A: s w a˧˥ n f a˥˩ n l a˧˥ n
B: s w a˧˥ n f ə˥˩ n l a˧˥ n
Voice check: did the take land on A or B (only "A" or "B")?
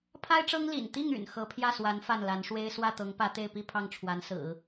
A